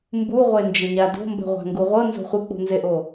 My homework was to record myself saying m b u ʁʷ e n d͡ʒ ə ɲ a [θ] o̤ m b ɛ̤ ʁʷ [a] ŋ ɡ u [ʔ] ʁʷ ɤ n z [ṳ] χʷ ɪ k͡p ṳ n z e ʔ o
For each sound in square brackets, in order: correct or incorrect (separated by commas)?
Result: incorrect, incorrect, incorrect, incorrect